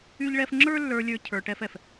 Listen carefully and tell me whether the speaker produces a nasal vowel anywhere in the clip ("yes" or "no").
no